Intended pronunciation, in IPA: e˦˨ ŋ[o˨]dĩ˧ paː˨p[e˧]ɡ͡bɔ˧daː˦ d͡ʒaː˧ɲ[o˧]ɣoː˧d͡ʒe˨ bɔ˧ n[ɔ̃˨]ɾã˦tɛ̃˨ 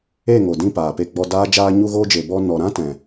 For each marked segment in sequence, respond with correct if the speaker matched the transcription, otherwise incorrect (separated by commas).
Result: correct, correct, incorrect, incorrect